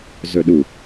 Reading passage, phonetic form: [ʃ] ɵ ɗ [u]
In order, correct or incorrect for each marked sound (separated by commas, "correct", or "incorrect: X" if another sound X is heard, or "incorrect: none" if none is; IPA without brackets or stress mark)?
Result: incorrect: z, correct